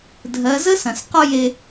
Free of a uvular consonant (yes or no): no